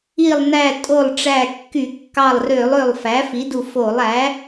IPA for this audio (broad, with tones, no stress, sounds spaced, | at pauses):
i˧˩ lˠ n æ˧˩ tʼ o˧˩ lˠ ʈ͡ʂ æ˧˩ kː y˧˩˧ kː ɑ˧˩ lˠ r ø˧˩˧ lˠ ø˧˩ lˠ f æ˩˥ f i˩˥ d u˧˩ f o˧˩˧ lˠ æ˩˥